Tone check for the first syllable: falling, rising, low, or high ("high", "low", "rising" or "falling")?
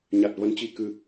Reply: low